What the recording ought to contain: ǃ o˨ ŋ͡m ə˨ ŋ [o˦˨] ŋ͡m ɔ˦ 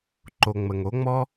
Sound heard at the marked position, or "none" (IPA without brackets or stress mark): o˨˦